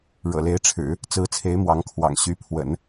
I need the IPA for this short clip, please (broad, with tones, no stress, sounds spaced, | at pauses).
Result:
ɻ ɤ̰˨˩ l e˧˥ ɪ̯ ʈ͡ʂʰ ɻ̩˨˩˦ | t͡s ɹ̩˧˥ t͡sʰ e˧˥ ɪ̯ m w ɑ˧˥ ŋ kʰ w ɑ̰˨˩ ŋ ɕ y˧˥ pʰ w ə̰˨˩˦ n